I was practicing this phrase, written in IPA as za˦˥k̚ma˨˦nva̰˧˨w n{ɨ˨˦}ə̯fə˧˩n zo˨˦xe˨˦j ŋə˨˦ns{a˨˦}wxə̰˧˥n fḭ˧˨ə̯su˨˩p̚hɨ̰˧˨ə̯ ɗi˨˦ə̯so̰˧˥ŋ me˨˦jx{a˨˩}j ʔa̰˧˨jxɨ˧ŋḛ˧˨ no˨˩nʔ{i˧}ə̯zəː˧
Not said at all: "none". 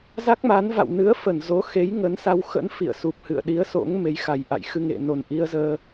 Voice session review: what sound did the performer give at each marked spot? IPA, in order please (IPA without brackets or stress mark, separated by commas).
ɨ˨˦, a˧, a˨˩, i˧